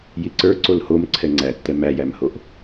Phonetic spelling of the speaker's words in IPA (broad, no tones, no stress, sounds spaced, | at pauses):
j i ǀ ə˞ ǀ o l h o m ǀʰ ɛ ŋ͡ǀ æ tː ɛ m æ j æ m h o ʔ